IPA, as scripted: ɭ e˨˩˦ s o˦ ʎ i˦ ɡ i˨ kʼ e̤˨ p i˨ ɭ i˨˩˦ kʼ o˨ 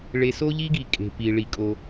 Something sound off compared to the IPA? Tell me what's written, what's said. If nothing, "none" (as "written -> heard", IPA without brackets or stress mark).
e˨˩˦ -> e˨